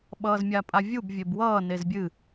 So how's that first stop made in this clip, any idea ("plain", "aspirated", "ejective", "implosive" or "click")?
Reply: implosive